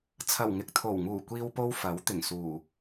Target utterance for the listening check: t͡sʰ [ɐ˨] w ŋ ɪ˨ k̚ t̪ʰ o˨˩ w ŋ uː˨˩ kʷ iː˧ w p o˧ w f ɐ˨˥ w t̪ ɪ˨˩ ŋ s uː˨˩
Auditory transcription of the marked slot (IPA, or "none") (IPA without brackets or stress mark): ɐ˨˩